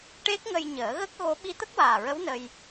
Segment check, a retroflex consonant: present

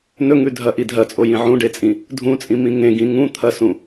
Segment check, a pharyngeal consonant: present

